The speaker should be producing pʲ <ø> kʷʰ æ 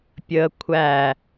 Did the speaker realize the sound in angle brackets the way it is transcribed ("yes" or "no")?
no